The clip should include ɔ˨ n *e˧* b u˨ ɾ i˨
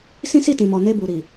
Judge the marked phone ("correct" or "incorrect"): correct